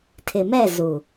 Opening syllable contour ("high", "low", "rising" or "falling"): low